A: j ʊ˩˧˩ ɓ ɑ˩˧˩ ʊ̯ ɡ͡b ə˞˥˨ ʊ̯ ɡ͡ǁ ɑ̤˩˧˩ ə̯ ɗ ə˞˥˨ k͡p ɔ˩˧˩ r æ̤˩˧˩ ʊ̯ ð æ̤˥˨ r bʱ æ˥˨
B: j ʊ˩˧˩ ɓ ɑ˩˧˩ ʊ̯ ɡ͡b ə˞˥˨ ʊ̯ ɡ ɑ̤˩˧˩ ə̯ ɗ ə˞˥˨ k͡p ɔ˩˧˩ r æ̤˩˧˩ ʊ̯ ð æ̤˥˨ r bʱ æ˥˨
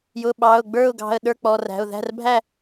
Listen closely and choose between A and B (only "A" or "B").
B